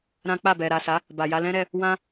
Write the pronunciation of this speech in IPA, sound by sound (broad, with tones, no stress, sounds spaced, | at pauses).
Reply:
ɾ ã˦ k͡p a˦˨ b ɛ˨ ɾ a˨ s a˨˦ | b a˨ j a˧ l ɛ̃˦ ɾ ɛ˧ | w ã˦